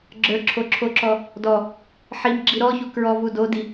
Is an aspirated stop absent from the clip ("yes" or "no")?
no